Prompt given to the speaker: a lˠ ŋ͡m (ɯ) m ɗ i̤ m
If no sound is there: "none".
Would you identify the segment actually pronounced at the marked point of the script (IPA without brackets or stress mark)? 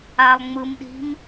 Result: ɯ